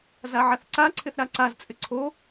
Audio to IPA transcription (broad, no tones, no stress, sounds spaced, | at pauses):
z a ʕ a θ ǀ a ǀʰ ɪ θ ɾ a ǀ a z t͡sʼ ɪ ǀʰ o